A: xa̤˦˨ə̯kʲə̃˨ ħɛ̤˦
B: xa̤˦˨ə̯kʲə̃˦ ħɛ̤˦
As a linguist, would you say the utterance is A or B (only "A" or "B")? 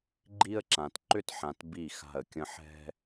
B